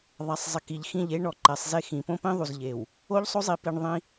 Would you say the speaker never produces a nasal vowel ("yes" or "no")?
no